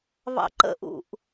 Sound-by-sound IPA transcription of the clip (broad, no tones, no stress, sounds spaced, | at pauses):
β ɑ̰ ǃ ə̰ ʔ ṵ ʔ